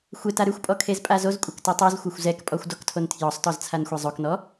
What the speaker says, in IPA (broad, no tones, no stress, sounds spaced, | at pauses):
xʷ e t a ɾ ʉ xʷ pʼ ɔ kʰ e z pʼ a z o z kʷʼ a k t ɯ tˤ o z xʷ a xʷ z ɛ k pʼ ɔ xʷ d ɔ k tʰ o n tʰ j ɔ sˤ t ɔ z t͡sʰ a n xʷ ɛ zˤ o k n ɔ